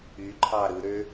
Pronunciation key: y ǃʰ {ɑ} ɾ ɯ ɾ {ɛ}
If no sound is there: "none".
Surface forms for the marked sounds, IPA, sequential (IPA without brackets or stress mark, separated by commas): ɑ, ø